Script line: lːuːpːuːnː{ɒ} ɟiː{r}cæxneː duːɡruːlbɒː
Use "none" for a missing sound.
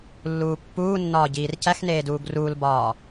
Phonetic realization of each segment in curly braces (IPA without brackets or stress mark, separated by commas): ɒː, r